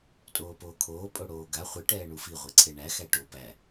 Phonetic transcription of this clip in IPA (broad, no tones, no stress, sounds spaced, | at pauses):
tʼ oː p oː kʰ oː pʼ o ɽ oː ɡ a χʷ i ʈ ɛː ɳ u f i ʁʷ i ǀʰ e ɳ æ x æ ʈ o p æ